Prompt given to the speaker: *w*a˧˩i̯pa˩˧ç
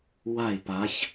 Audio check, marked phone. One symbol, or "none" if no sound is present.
w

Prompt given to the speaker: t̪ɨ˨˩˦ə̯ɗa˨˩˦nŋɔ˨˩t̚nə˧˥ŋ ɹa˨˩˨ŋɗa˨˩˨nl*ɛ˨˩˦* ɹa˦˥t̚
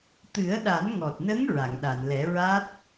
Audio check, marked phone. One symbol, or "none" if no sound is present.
ɛ˨˩˦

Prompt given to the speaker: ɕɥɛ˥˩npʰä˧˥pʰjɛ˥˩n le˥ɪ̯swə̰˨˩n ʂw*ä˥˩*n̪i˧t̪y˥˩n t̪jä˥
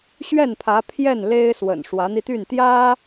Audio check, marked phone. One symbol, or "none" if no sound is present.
ä˧˥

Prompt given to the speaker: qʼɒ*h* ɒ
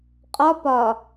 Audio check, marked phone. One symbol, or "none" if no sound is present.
p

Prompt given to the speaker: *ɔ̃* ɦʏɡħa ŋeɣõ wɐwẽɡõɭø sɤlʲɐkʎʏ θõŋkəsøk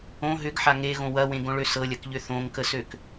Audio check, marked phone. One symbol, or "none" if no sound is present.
õ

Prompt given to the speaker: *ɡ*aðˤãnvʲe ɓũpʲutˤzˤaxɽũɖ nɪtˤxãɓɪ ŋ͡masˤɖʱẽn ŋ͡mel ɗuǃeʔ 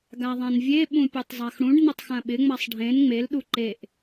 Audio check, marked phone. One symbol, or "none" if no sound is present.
ɡ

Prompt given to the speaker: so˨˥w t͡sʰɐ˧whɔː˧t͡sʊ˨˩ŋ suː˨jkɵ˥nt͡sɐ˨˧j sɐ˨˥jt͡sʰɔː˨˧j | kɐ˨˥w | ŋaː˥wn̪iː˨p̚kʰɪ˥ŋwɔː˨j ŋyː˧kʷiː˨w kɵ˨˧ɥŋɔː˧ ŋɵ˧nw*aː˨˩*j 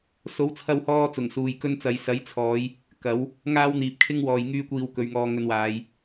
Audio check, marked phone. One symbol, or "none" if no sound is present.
aː˨˧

